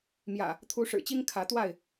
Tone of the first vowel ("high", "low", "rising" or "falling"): low